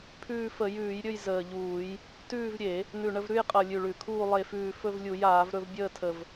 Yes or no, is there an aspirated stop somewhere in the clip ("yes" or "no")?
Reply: yes